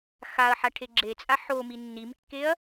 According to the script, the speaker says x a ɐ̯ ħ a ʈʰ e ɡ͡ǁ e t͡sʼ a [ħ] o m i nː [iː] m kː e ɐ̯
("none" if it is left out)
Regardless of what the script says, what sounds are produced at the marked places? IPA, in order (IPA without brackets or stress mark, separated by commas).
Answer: ħ, i